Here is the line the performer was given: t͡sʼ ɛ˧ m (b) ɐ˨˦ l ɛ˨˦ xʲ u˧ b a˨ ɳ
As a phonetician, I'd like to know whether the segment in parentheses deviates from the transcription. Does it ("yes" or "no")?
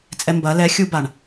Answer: no